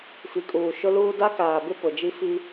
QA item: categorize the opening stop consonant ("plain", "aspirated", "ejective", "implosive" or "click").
ejective